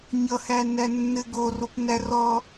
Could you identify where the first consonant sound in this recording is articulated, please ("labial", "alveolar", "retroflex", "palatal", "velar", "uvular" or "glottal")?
palatal